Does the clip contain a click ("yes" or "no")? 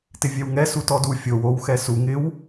no